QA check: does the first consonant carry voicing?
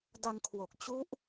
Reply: yes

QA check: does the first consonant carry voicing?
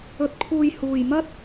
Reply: no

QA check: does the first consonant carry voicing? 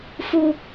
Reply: no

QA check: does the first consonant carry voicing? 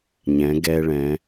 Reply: yes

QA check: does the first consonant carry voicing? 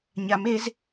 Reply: yes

